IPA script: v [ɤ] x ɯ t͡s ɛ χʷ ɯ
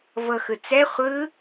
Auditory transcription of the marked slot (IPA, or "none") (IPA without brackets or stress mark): ɤ